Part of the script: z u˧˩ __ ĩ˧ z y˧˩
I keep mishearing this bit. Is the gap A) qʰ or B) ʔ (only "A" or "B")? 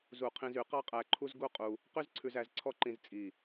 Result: A